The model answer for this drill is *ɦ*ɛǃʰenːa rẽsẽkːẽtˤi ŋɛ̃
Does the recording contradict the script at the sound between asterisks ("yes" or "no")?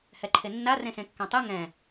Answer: yes